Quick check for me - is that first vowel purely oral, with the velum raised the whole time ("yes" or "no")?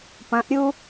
no